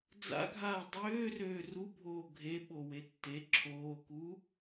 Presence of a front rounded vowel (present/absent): present